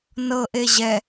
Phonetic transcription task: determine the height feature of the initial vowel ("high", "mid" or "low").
mid